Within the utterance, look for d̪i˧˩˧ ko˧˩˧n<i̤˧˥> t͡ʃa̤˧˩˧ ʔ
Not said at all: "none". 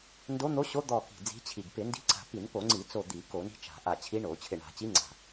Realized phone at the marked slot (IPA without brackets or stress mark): i̤˧˥